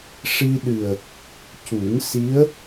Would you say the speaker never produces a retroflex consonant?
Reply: no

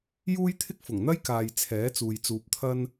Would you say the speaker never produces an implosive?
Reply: yes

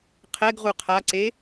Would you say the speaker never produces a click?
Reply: no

